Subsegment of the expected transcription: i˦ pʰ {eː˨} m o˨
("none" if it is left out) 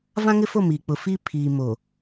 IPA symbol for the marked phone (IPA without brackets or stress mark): iː˨